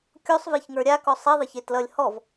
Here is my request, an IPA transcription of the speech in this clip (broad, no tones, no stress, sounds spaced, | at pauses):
kʲ o sˤ v e ç ŋ ə˞ ɾʲ a k ɔ sˤ e ðˤ ɪ ç e t l ʌ lʲ h ɔ v